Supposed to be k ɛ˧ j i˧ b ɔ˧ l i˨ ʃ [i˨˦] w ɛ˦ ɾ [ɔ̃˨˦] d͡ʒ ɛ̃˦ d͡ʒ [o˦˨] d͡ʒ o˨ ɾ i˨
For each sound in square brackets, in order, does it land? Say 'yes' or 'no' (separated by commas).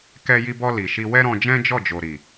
no, no, no